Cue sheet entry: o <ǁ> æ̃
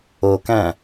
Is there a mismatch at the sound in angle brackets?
yes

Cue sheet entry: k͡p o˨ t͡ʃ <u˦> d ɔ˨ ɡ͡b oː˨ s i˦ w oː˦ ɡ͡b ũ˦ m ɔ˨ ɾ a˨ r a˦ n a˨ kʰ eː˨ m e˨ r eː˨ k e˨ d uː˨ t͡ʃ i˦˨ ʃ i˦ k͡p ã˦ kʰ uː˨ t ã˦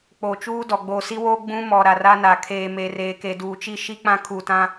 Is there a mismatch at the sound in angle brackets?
yes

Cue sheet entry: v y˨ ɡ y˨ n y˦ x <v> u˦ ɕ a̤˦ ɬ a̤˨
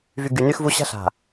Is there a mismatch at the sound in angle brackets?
no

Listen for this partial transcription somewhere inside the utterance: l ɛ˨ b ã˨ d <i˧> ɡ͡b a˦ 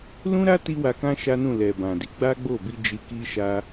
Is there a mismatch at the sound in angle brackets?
yes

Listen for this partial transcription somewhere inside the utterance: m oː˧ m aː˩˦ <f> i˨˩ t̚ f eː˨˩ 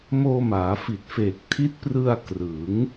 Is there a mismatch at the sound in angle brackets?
no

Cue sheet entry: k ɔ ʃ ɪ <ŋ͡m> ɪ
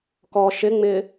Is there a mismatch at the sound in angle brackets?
no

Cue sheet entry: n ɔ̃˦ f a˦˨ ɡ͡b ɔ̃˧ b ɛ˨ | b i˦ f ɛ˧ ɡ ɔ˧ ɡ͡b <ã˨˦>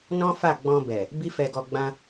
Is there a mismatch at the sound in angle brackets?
yes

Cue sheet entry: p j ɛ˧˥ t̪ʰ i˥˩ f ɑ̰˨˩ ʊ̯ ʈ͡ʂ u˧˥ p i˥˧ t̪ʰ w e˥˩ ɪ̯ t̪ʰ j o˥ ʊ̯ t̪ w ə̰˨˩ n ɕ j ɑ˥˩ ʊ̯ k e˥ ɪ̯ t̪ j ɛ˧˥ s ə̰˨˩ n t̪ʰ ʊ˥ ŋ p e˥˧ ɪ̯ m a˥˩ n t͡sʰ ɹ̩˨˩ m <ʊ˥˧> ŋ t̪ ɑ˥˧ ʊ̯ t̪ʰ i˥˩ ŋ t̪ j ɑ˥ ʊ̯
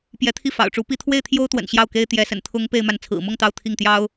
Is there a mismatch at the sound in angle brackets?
no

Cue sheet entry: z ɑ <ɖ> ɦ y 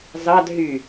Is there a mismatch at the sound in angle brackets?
yes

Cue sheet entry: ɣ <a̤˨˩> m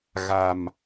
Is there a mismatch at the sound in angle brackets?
no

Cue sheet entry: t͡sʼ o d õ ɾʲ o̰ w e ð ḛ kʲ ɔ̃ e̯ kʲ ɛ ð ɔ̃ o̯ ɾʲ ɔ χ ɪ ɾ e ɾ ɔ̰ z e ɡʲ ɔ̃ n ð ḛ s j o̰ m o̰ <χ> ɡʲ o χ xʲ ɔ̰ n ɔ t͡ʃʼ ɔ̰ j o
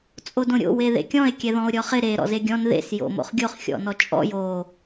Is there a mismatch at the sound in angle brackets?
no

